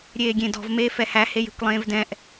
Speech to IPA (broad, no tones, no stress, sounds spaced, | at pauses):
ɾʲ eː ɡʲ ẽ d ɔ̤ v m eː f ɛ h æ h e j e̤ kʷ lˠ ẽː v d ɛ̃ ʔ